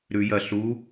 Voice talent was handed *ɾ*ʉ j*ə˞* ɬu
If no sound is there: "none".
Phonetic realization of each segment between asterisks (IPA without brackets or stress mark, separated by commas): ɾ, ɐ